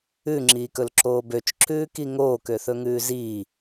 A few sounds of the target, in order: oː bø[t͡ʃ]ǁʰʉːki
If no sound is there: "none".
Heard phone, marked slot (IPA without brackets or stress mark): t͡ʃ